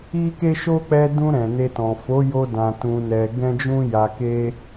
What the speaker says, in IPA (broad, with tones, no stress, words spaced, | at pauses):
i˦ke˦ʃo˦ k͡pɛ˧dũ˧ ɾɛ̃˨ne˧tɔ̃˨ fo˨˦jo˧ dã˨ tũ˧nɛ˧ ɡɛ̃˦ d͡ʒũ˦ja˧ke˦